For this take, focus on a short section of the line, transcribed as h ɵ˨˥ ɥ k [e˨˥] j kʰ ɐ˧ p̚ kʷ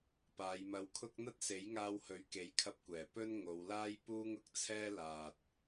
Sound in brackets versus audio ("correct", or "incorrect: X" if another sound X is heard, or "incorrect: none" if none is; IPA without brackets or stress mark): correct